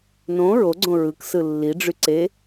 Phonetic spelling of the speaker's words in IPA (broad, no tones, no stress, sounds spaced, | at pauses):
n õ ɹ o ɡ͡ǀ õ ɹ ɯ k s ɯ lː i ɖ͡ʐ y ǀ e